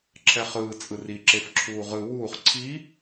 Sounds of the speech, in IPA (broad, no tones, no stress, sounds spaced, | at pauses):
ǁʰ ɛ χ ɯː t͡sʼ ɯ r i ǁ e f ǁʰ uː ʁ ɯ w uː χ ǀʰ i